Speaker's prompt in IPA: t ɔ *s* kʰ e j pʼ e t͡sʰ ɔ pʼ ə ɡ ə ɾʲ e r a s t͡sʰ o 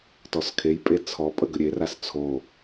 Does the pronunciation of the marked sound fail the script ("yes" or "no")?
no